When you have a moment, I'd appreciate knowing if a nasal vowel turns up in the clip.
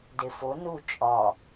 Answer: no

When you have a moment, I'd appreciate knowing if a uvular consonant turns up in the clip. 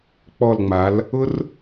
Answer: no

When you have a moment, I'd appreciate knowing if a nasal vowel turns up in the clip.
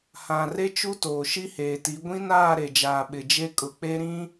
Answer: yes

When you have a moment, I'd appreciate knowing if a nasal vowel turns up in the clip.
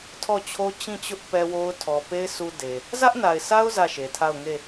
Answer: yes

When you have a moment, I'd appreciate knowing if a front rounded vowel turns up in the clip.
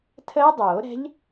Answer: no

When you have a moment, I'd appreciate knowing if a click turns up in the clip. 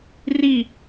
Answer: no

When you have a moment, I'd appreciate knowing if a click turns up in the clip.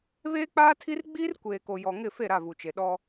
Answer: no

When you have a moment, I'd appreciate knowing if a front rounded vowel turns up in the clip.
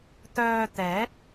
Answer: yes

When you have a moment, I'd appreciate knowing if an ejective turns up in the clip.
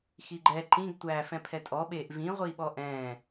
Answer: yes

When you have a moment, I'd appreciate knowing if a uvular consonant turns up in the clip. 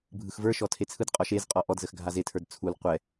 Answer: yes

